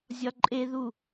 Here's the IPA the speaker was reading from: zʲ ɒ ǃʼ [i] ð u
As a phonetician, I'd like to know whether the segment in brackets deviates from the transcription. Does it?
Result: yes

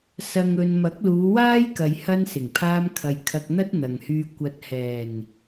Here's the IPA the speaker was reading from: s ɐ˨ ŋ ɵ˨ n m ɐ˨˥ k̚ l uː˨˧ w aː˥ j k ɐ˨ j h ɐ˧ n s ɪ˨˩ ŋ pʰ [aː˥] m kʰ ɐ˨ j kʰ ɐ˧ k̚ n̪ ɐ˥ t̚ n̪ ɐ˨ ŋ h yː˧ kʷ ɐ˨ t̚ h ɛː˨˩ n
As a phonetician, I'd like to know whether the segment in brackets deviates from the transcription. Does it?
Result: yes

